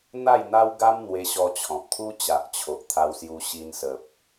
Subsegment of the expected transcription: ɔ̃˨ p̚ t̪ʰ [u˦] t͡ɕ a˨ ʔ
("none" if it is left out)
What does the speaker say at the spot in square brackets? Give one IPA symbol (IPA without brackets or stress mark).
u˦